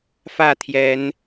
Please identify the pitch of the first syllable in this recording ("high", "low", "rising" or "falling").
falling